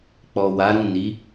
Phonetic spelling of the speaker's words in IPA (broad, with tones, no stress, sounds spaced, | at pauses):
k͡p ɔ˨ w a˨˦ ɾ ũ˦˨ n i˨˦